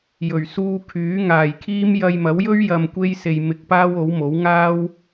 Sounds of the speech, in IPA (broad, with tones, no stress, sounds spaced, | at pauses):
j ɵ˨˩ ɥ s uː˧ kʰ yː˨˥ ŋ aː˨ j kʰ iː˥ m j ɐ˧ j m ɐ˨˥ w j ɵ˥ ɥ j ɐ˧ m kʷ e˥ j s e˧ j m ɪ˧ k̚ p aː˥ w o˨˥ w m o˨˥ w ŋ aː˥ w